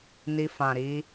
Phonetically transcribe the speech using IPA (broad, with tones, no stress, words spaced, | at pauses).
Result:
ni˧fã˨ɾi˧